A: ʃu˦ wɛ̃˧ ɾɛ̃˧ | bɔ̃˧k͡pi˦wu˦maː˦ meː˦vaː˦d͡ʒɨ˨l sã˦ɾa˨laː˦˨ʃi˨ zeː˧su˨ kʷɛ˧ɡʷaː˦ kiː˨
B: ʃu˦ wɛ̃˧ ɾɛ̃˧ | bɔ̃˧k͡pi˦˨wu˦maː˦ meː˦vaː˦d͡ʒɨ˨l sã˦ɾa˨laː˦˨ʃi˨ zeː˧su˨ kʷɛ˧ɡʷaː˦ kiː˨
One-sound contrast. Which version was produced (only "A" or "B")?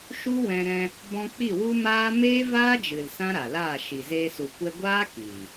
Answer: B